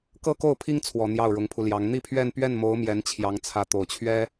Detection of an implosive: absent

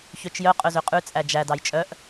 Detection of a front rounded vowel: present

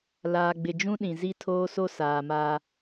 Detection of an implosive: present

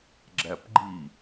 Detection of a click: present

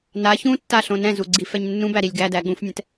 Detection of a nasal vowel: present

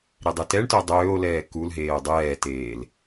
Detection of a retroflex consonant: present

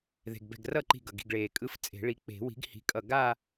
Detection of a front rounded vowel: absent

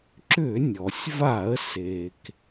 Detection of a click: present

